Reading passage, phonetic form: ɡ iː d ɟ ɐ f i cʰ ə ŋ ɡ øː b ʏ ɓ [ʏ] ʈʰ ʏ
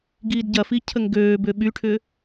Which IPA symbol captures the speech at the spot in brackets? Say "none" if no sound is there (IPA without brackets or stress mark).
y